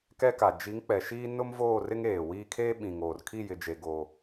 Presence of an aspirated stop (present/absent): present